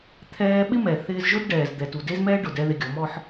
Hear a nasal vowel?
no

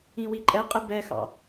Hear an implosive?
no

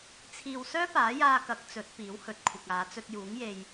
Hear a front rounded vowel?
yes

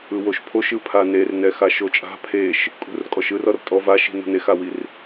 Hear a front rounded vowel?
no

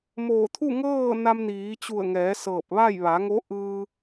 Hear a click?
no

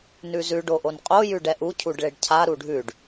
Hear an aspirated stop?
yes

